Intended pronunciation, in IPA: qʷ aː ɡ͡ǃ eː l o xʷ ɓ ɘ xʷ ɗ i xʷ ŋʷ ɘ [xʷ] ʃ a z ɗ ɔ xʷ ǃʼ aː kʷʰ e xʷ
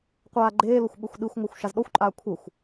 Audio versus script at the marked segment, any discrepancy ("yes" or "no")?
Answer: no